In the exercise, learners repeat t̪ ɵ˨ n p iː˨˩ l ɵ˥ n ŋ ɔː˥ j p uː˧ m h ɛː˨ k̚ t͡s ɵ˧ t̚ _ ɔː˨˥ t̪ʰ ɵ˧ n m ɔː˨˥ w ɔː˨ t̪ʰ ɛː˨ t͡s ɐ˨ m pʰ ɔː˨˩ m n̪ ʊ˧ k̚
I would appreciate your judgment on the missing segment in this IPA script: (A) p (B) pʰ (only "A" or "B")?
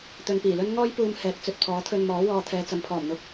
B